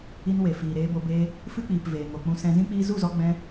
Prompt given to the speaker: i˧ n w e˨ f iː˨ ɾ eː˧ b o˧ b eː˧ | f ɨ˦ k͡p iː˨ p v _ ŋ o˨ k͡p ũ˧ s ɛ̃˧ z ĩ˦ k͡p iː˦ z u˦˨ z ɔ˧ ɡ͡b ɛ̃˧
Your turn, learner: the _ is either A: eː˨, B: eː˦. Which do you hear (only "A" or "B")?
A